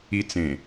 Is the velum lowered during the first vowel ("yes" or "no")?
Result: no